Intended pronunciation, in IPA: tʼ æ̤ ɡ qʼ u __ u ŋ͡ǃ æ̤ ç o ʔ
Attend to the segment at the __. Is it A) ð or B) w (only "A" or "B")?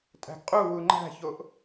B